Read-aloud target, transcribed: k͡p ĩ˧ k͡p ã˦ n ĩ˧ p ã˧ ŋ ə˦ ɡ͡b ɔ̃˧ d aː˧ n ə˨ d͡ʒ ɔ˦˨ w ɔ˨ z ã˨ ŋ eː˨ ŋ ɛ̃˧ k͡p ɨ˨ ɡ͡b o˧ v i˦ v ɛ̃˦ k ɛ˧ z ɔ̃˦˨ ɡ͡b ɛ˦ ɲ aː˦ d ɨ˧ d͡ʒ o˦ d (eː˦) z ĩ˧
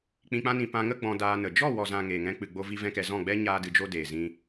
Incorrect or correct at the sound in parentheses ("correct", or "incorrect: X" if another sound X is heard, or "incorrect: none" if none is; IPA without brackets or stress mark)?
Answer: incorrect: eː˨